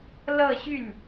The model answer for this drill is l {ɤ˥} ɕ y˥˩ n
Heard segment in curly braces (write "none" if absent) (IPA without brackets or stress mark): ɤ˥˧